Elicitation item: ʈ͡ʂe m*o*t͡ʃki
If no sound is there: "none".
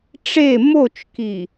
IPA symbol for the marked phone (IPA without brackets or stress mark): o